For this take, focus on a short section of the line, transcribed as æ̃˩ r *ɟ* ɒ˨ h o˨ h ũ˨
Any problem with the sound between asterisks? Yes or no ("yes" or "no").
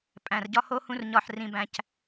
no